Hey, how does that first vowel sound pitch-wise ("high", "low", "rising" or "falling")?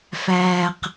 low